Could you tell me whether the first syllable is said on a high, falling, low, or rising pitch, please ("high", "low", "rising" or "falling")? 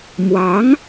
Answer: rising